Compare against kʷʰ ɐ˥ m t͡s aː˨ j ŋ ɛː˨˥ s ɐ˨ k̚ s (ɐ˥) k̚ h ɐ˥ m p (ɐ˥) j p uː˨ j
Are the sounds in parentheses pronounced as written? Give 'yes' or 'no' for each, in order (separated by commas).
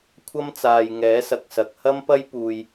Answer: no, yes